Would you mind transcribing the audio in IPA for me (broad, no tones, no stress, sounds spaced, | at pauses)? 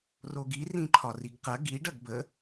r o ɡ i r ĩ ǃʰ ɒ r i ɡ q ɐ ɡ i ɖ ɐ ɡ b ə